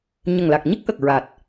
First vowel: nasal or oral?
oral